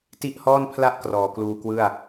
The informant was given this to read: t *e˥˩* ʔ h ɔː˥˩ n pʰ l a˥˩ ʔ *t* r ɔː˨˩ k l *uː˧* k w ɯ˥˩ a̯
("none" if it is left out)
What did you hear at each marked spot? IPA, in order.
i˥˩, k, uː˧

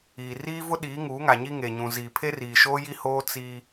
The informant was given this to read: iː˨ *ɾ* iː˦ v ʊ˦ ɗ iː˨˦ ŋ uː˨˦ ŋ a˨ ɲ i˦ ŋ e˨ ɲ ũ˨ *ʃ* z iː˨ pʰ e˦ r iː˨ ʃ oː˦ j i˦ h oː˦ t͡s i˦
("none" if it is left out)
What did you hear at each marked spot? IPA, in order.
r, none

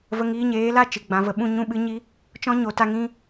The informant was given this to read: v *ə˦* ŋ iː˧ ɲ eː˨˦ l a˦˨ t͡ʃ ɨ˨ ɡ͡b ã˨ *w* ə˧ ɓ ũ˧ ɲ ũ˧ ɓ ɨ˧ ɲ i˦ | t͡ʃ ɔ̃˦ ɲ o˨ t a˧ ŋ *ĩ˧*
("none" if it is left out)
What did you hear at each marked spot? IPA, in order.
ə˧, v, ĩ˧

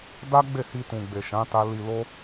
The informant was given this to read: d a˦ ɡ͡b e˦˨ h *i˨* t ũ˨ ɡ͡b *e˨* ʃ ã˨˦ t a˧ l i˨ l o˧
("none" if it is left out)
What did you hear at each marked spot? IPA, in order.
i˨, e˨

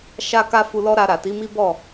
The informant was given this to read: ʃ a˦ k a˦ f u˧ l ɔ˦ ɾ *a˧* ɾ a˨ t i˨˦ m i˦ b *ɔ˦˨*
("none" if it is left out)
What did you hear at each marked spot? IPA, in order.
a˧, ɔ˦˨

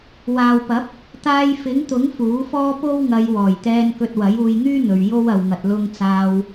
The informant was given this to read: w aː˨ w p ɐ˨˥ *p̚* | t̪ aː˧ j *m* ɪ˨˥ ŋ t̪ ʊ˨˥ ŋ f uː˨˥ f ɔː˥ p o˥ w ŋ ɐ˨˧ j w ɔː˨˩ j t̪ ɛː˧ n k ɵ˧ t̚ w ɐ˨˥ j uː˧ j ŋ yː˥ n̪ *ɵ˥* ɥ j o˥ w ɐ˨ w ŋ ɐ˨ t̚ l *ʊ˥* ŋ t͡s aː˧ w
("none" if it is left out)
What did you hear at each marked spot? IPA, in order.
p̚, f, ɵ˨, ʊ˧

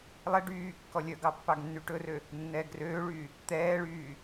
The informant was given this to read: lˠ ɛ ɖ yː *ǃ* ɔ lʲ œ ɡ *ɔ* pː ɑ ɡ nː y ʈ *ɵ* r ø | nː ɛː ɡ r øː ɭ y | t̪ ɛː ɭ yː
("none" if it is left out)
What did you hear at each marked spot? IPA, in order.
kː, ɑ, ɵ

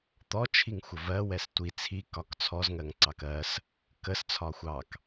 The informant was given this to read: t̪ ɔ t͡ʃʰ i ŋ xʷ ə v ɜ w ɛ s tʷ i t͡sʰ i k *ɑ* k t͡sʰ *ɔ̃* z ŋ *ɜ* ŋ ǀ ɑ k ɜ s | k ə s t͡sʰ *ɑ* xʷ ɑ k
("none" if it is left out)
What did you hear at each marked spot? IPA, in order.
ɒ, ɔ, ɜ, ɒ

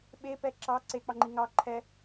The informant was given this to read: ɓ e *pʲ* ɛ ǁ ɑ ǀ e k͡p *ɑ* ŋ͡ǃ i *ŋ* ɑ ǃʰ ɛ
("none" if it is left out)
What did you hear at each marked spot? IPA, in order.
p, ɑ, ŋ

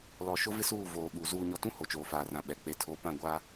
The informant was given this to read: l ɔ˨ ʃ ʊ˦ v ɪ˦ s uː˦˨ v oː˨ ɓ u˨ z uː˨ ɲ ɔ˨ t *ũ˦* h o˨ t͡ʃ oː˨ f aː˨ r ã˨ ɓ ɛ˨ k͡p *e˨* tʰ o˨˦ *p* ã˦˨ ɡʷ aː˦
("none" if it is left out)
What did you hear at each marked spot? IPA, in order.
ũ˦, e˨, p

